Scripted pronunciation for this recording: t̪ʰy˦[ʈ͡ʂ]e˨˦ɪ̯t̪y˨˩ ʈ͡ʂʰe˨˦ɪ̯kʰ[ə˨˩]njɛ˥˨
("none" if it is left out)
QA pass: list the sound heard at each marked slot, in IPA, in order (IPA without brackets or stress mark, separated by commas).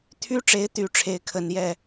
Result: ʈ͡ʂ, ə˨˩